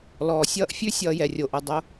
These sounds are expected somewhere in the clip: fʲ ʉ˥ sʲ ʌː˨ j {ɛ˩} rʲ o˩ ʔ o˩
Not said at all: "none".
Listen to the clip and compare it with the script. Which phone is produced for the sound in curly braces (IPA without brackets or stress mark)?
ɛ˩